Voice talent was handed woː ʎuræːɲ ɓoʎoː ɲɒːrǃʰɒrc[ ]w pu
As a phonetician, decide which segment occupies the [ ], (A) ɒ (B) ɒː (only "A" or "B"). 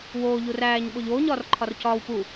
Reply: B